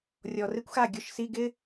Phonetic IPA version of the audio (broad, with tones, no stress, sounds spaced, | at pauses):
rʲ ɔ˨˩ r ɪ˥ kʷ x a˥˩ ɡʲ ʊ˧˥˧ ʃ s i˧˥˧ ɡ ɪ˥